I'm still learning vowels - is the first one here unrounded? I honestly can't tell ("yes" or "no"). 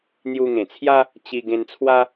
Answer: no